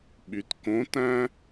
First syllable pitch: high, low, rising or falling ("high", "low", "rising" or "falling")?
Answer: low